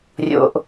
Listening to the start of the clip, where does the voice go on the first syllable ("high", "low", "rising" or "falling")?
low